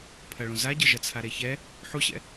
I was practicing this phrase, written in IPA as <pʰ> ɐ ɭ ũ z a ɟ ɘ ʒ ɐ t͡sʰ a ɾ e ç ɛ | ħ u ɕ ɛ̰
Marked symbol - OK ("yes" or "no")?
yes